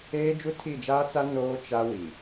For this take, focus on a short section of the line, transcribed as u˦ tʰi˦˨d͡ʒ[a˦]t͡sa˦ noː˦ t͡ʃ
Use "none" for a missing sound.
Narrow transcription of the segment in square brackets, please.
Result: aː˦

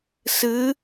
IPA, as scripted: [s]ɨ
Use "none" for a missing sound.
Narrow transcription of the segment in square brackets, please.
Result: s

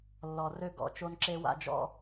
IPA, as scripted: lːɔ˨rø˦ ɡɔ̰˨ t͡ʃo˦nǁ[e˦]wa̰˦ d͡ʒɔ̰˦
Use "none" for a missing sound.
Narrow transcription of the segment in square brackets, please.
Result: e˦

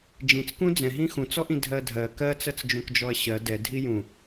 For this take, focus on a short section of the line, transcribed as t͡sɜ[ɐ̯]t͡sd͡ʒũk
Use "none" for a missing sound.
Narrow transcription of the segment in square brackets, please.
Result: none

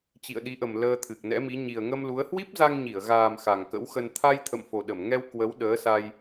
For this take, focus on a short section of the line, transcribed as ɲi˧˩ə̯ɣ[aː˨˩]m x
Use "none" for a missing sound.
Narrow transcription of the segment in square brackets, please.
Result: aː˨˩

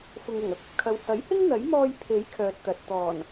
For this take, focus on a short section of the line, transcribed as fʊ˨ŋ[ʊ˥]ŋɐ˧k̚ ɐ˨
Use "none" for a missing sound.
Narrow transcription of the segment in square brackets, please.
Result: ʊ˨˩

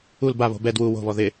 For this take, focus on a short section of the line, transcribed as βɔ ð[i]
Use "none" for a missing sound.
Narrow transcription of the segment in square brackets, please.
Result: ɪ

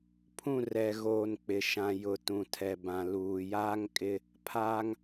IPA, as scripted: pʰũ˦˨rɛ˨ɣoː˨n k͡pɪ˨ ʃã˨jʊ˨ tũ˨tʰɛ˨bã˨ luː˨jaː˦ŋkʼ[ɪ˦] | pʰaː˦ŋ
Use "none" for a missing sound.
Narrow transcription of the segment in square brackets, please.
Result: ɪ˦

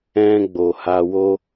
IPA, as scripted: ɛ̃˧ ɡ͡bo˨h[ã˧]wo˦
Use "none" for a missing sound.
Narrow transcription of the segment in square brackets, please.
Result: a˧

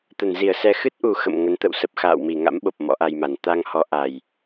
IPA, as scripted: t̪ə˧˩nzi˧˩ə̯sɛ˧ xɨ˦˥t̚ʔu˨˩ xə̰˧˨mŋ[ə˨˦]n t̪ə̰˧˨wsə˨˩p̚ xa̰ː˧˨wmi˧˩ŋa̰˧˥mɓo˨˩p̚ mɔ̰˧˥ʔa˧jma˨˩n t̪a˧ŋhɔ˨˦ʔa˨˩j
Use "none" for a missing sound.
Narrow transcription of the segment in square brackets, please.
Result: ə˨˦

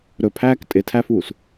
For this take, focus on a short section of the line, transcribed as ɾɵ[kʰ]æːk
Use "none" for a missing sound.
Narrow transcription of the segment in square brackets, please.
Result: pʰ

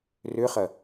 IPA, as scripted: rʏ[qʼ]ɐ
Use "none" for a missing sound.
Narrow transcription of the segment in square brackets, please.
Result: χ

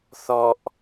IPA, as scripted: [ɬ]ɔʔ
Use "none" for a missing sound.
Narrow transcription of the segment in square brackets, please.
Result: θ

